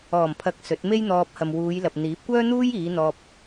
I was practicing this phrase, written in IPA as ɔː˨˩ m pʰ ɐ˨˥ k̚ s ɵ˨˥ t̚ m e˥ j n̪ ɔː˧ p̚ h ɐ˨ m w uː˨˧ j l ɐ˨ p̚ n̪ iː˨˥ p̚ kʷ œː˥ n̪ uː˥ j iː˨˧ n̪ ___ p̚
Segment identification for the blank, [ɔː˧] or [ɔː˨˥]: ɔː˧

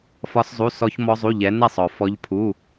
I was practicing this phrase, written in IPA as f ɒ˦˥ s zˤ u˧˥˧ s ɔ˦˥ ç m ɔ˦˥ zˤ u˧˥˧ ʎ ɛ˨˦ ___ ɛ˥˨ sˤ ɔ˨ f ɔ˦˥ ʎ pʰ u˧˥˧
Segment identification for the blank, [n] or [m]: n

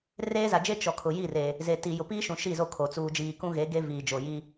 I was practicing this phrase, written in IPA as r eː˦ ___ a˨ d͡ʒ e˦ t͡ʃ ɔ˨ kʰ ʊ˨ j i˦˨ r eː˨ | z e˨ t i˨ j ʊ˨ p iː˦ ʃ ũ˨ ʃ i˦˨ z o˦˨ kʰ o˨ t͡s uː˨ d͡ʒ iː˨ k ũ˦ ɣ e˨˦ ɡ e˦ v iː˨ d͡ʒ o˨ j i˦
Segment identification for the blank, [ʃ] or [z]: z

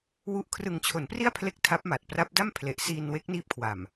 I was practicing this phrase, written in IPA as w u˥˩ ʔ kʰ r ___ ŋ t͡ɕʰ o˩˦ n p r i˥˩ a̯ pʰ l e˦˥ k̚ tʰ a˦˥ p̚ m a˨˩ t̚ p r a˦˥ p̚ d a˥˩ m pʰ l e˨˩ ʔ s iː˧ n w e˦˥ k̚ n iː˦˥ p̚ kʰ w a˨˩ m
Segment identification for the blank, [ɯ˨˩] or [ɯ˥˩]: ɯ˨˩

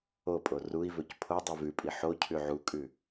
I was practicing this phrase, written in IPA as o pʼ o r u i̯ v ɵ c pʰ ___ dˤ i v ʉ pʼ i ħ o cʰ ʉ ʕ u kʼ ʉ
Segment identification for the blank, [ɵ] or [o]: o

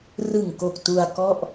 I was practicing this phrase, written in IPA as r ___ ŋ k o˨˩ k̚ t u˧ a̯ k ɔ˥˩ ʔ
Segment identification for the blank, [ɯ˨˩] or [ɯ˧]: ɯ˨˩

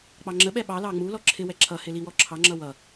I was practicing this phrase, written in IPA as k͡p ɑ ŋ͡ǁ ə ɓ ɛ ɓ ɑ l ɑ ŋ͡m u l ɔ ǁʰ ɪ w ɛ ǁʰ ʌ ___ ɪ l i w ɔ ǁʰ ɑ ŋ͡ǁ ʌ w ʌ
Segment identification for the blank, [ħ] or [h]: h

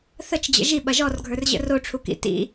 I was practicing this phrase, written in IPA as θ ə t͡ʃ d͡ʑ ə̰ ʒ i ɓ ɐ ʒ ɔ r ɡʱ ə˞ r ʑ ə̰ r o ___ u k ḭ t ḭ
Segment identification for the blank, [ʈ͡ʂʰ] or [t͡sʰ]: ʈ͡ʂʰ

